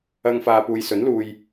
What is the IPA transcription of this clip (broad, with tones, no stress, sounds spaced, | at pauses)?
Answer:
ɐ˧ ŋ f aː˨ p uː˨ j s ɵ˨˥ n l uː˧ j